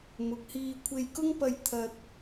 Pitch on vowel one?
rising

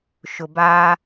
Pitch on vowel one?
low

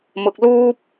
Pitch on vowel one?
low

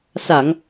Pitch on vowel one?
low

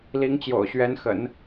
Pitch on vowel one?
rising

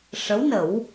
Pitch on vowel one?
rising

